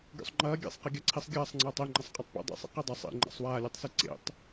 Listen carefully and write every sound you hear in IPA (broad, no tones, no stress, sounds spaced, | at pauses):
ɡʲ o̰ sˤ ŋ͡ǃ ɐː ɡʲ ḛ sˤ q e ɡʲ a ǀʰ i sˤ ɡʲ ɐː sˤ ŋ͡ǀ ɐː tˤ i ŋ͡ǃ ɐ sˤ qʼ ɐ tˤ p ḭ dˤ ḭ sˤ ḭ q i dˤ ɐ sˤ ḭ ŋ͡ǃ a̰ sˤ w aː lʲ e tˤ s i ǀ ḛ tˤ